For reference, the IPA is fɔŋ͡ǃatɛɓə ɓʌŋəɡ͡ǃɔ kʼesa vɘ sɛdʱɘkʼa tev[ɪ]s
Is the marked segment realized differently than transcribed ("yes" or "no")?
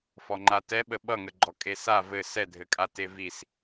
yes